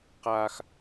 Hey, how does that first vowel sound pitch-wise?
high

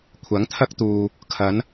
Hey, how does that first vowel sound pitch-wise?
rising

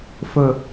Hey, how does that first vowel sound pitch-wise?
low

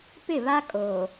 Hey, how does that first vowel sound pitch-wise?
falling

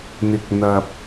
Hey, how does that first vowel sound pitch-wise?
low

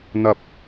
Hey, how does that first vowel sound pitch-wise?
low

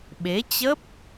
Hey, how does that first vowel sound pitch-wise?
rising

